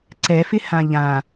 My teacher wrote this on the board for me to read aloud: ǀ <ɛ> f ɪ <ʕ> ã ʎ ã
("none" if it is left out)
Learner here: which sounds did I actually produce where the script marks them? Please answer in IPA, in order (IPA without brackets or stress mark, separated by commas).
ɛ, h